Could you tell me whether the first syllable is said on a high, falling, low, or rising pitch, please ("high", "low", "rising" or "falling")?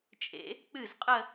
rising